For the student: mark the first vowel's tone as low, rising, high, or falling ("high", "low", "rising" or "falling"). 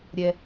low